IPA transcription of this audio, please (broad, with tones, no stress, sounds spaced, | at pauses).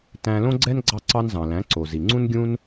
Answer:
t æ̃˧ l õ˥ ɡ͡ǀ ɛ˥ n ɡ͡ǀ ɑ˧ ǀ ɑ˧ n z ɑ̃˩ l æ̃˩˥ ǀ o˩ z i˩ ŋ͡ǀ ũ˥ n ɡʲ ũ˥ n